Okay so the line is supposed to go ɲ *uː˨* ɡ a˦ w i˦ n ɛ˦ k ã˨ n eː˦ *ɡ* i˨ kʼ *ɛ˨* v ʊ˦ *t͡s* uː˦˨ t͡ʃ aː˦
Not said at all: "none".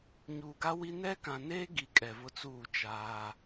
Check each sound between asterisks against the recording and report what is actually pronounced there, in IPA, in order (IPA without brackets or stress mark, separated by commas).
uː˨, ɡ, ɛ˨, t͡s